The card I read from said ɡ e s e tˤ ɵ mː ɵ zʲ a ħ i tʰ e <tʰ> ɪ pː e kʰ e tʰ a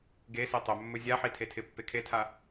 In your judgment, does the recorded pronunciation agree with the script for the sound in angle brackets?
yes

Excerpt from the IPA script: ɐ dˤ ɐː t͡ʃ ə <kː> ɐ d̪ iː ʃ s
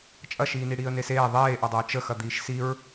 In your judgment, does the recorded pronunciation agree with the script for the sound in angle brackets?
no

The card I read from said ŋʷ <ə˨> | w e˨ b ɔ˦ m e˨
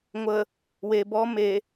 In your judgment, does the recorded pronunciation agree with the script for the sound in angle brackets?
yes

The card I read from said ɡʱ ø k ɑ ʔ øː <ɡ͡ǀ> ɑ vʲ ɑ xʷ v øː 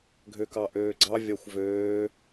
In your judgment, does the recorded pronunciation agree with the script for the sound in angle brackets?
yes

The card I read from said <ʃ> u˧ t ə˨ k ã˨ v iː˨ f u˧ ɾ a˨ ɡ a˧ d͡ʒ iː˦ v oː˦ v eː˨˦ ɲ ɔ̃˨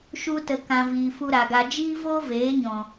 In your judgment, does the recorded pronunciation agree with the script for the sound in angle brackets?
yes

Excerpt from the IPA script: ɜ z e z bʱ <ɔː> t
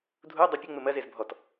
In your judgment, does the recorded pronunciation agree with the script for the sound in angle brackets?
no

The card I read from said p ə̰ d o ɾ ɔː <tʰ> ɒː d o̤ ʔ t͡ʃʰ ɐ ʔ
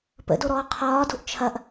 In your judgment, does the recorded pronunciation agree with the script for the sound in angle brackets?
no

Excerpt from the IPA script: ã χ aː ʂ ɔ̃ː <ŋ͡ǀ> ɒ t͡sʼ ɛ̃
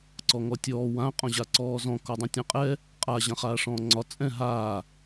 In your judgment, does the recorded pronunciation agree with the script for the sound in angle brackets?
yes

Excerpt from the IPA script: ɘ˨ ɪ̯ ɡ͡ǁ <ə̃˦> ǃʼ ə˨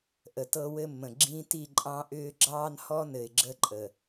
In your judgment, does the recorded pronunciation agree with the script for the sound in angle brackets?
no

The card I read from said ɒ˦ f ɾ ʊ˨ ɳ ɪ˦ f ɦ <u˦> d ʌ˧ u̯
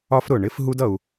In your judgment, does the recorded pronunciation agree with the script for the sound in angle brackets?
yes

